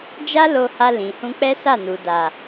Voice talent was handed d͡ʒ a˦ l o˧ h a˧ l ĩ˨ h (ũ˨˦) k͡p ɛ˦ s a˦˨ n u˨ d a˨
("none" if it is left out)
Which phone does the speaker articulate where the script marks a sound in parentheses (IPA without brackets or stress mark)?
ũ˧